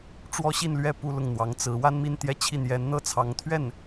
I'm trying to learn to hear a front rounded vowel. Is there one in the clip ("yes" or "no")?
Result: no